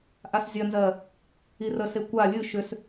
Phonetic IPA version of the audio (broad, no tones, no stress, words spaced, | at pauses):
ʔaszʲɜnzɜ | irəse kʷa lʲɨ ʃʏs